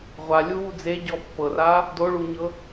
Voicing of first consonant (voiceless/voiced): voiced